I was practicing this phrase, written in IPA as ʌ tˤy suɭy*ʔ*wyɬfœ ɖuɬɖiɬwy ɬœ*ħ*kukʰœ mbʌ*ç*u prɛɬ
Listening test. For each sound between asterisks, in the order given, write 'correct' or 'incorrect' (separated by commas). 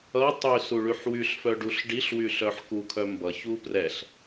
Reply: incorrect, correct, correct